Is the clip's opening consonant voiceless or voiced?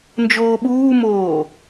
voiced